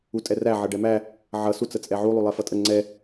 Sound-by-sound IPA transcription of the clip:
u tʼ ɛ r æ ʕ ʌ ɖ ɛ m æ | ʕ ʌ s u t͡s ə t͡sʼ ɛ ʕ u lˠ u lˠ ɛ f ʌ tʼ ə ŋ͡ǀ ɛ

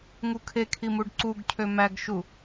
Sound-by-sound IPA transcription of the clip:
ŋ u kʰ e kʰ i m u ɖ ǀ u ɡ cʰ ø m æ ɡ ʃ u

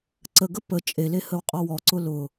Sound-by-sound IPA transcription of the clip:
ǀ ə ɡ ə p ə t͡ʃʼ e l e h ə w qʼ ɔ w ɔ ǀ ʊ l ʊ

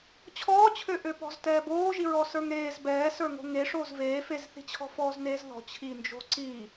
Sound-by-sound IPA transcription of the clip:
t͡ɕʰ ɔː t͡ɕʰ ø ʔ ø p ɔ̤ z t ɛː b oː ʒ i ɹ ɔ s ə˞ ŋ ɾ eː z b ɛː s ə˞ ŋ o̤ ŋ e ʂ oː z v eː f e z θ i̤ t͡ɕʰ ɔ̤ f ɔː z n eː z ð ɔ̤ t͡ɕʰ iː n d͡ʒ o̤ ǀ iː

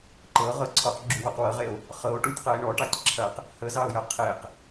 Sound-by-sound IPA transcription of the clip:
ǃ ɤ ʁ ɤ ǀʰ ɔ q ɡ͡ǁ u w ɔ q w ɤ ʁ e o̯ | χ ɤ o̯ ʈ u tʲ q ɐ e̯ ɳ ɔ ʈ ɑ tʲ ǁʰ ɐ q | h ə z ɑ o̯ j ɐ qʰ e q

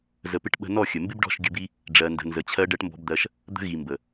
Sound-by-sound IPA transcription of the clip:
z ə˨ p ɪ˧ ʈ ɓ ə̤˧ n ɔ˦˨ xʲ ə˨ m b ɪ˦ b ɖ ɔ̤˦˨ ʃ ɡʲ ə˧ b i˦ | ɖ͡ʐ ɜ˧ n d ə̤˧ n z ə˧ t͡ɕʰ ɜ˦ ɖ ɜ˧ ʈ m b ɔ̤˧ b d̪ ɜ˧ ʃ | d̪ ə̤˧ ɣ i˨ m b ə˨

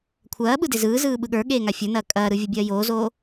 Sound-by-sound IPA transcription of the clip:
kʷʰ ɐː ɓ ɯ d e z ɯː z ɯː ɓ ɯ ɠ ə˞ ɠ eː ŋ a fʲ ə˞ n ɐː kʼ ɐː ɾ ɯ vʲ ɐ bʲ ɐː j oː z oː

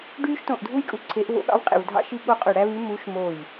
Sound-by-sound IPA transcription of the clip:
ɖ yː˥ ʃ t õ˦˨ ʔ dʱ u˥ j kʼ u˧˥ ǀʰ e˧˥ ʔ v o̰˧˥ ɠ ɑ̰˧˥ v qʼ ḛ˦˨ v dʱ ɑ̰˥ ʃ i˥ ɠ o˥ qʼ ø˦˨ ɽ æ˥ β y˧˥ m u˧˥ ʃ m oː˦˨ j

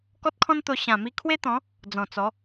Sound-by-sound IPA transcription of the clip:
k ɔ˦ t̚ kʰ ɔ̃˦ n t̪ o˧ ɕ ã˨˩ m i˧ kʰ w e˦ t̪ ɔ̃˨˦ | d͡z ɔ̃˨˩ t͡s ɔ˨˦

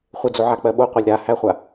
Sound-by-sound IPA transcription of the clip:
χʷ ɪ d͡z o ʕ a k͡p ɜ ɓ o qʷ a lʲ ɾ a h æ χʷ a

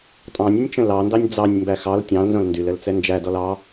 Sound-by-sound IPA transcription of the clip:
tʼ ɑ̃ nʲ ə nʲ t͡ʃ ə̃ l ɑ n d ɑ nʲ d͡z ɑ nʲ m b æ x ɑ l tʲ ɑ̃ l n z õ l n d y l ə l t͡s ɛ n d͡ʒ æ d ɔ l ɑ

